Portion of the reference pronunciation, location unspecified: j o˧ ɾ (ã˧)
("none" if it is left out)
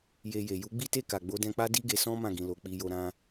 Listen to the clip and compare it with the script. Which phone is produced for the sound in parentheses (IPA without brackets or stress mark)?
ã˦